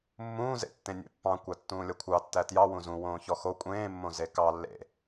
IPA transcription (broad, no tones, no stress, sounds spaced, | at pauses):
mː ũː z ḛ tː ẽ nʲ ḛ pː ɑ̃ kʷ æ tː ũː lʲ ʌ kʷʰ ɑ tː æ t j ɑ w ũ z ũ w õː ç ɔ x o kʷʼ ẽː mː õ z e k ɑ lː ḛ